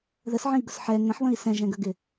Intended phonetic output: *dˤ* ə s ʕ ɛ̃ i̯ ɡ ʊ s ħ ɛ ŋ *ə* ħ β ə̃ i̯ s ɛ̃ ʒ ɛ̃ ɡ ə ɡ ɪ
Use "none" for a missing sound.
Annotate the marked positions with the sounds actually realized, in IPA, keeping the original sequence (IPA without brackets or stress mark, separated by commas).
ð, ə̃